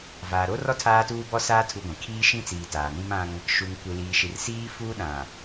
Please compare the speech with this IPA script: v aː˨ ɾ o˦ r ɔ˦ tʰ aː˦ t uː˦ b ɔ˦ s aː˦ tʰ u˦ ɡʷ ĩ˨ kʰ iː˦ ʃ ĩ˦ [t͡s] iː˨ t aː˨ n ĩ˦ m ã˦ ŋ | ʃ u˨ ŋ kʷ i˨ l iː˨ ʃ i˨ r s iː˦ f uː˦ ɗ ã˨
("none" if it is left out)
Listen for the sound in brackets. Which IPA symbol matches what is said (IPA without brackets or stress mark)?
t͡s